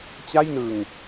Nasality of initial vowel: oral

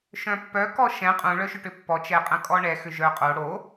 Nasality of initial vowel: nasal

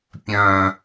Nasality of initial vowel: nasal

